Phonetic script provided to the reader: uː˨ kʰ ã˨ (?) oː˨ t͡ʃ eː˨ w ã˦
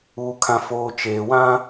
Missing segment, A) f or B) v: A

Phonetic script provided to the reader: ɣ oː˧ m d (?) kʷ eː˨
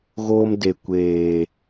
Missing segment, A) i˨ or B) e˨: B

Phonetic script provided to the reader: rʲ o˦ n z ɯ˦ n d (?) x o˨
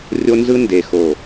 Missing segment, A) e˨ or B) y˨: A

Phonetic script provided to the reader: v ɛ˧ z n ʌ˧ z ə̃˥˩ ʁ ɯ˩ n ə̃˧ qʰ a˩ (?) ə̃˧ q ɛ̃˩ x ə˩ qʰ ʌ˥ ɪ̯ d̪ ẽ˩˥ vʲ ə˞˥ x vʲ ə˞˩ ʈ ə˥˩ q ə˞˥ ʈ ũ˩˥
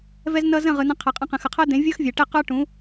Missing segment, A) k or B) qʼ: B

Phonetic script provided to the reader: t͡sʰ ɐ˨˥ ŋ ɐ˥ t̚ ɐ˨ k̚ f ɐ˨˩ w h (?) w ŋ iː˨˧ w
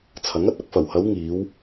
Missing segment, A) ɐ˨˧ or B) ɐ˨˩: A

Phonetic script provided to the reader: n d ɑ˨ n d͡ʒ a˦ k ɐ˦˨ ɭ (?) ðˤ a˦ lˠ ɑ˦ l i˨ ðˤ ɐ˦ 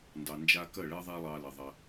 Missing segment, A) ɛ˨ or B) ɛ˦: B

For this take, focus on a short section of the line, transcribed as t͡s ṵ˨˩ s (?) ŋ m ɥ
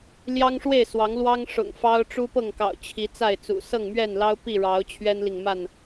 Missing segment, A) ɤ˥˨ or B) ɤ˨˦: A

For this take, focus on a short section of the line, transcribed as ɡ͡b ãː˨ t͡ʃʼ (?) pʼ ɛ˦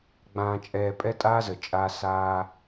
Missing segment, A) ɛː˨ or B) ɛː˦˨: A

